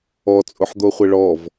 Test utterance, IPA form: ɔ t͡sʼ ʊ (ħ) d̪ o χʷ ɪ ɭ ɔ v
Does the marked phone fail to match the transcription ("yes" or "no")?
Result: no